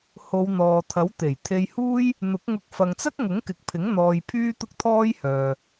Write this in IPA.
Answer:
h o˨˧ w n̪ ɔː˨ t̪ʰ ɐ˨˥ w t̪ e˨˩ j t̪ʰ e˧ j h uː˥ j | n̪ ʊ˨˥ k̚ ŋ ʊ˧ k̚ f ɐ˨ ŋ t͡s ɐ˥ k̚ ŋ ʊ˨˥ ŋ k ɪ˨ k̚ pʰ ɪ˨˥ ŋ n̪ ɔː˧ j pʰ yː˥ t̪ ʊ˥ k̚ t̪ʰ ɔː˥ j h œː˨

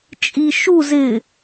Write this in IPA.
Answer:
t͡ʃʼ i ʃ u z ɪ

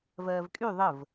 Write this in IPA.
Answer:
v ɜː v kʼ y ðˤ ə v

